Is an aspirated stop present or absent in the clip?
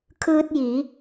present